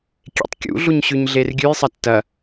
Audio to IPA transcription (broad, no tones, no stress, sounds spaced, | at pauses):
kʲ ḛ tˤ kʲ ṵ ɮ u ɲ ɕ ʉ ɲ ɮ e r ɡʲ ʉ j sˤ ɐ tː ɐ